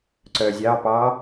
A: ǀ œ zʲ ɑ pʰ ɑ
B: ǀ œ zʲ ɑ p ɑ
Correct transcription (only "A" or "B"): B